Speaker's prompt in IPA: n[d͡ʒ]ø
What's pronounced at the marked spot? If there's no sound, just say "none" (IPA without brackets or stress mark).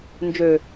d͡ʒ